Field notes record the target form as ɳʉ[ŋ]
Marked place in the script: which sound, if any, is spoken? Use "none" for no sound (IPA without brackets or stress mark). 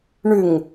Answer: ŋ